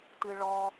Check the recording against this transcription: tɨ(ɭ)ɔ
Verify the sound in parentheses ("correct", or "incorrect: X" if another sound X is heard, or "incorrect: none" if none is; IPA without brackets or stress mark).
correct